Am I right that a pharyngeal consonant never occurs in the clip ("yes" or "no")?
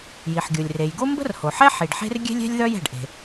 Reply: no